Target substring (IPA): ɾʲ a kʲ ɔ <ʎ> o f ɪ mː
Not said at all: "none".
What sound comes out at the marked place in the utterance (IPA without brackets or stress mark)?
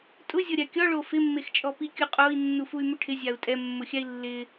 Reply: ɭ